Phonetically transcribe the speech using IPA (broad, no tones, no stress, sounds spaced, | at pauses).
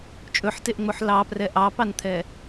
t͡ʃʼ ɵ ħ t e ʔ ŋ͡m o ħ l ɑ p r ɛ ʔ ɑ p ɑ n t̪ʰ ɛ